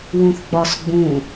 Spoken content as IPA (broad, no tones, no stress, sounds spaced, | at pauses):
w ũ θ ɡ͡b ɒ s ɡ͡b ũ